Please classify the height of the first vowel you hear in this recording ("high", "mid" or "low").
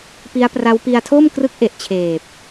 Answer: high